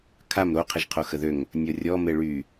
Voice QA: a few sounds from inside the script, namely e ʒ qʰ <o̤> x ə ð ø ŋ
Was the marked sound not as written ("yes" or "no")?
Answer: yes